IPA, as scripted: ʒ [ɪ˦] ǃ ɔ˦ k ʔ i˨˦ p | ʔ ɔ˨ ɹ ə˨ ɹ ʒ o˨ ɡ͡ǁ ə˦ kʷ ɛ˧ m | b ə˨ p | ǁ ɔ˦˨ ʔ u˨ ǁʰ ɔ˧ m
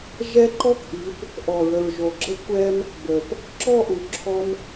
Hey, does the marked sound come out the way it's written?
no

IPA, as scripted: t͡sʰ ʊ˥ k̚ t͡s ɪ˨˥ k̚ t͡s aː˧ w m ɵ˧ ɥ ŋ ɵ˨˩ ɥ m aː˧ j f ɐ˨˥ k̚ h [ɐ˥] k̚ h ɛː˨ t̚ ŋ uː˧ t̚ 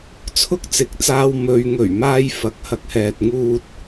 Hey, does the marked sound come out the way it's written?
no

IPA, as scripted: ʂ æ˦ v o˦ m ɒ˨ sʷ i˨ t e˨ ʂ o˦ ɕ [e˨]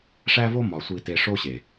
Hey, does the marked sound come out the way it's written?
yes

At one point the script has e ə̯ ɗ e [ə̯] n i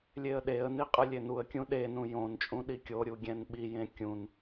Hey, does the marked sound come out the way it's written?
yes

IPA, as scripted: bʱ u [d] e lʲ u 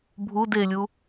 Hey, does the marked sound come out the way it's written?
yes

